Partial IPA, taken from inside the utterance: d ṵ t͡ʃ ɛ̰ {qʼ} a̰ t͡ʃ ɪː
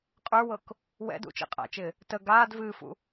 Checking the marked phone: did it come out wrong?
no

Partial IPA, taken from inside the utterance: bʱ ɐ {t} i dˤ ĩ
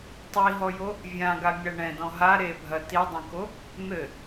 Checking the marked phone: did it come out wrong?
no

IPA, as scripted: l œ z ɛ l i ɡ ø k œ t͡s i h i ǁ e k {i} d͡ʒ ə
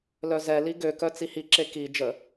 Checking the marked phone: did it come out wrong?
no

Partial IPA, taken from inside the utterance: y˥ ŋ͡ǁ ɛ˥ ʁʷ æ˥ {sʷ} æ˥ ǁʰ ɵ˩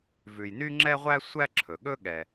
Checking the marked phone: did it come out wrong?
no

